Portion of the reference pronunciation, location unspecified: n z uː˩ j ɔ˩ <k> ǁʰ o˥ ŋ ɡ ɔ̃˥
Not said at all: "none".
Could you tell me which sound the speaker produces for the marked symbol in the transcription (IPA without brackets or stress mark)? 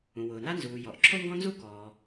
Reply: ʔ